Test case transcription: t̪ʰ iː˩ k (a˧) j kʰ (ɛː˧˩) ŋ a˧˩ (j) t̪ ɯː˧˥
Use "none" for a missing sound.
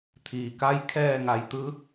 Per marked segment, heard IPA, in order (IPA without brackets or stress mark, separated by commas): a˧˥, ɛː˧˩, j